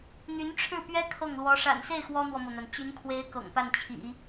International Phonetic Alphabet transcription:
n̪y˧˥nʈ͡ʂʰɻ̩˥˩pɥɛ˥ kʰɤ˥˩ŋlwɔ˧˥ ʂa̰˨˩nse˥˩ɪ̯ xwɔ˥n̪wɔ˨mɤ˩n̪a˩n t͡ɕy˧˥nkʰwe˧˥ɪ̯ kɤ̰˨˩ŋpa˥˩nt͡ɕʰḭ˨˩˦

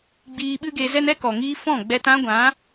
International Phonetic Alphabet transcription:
ɡ͡biː˧ɓɨ˦ɡe˧zɛ˦n ɛ˦kɔ˨ŋiː˧ fɔ̃˦˨ɡ͡bɛ˧t ã˦ɡʷã˨˦

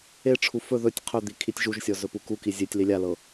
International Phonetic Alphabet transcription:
eʈ͡ʂʰu fɵ ðɵtʲ qʰɵd̪i kʰitʲʒuʒsʲɔ zɵpukuki zʲetʲ lilʲalɤ

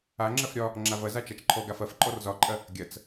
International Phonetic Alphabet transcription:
aŋ͡ǁɐf ɾʲɒ | ŋ͡ǁavɐza t͡ʃat͡ʃǃʰɔɡaf ɐf ǃʼɔrzɒǃʼɐ | ɡʲɐt͡s

